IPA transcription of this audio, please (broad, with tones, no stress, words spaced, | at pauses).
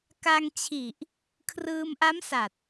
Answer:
ka˧ŋt͡ɕʰi˨˩ʔ | kʰrɯː˧mʔa˦˥msa˨˩t̚